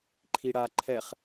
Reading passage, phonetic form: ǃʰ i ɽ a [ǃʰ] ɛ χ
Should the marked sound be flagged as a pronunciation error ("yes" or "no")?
no